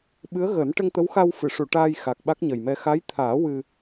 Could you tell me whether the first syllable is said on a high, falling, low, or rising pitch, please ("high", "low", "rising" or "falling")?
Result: rising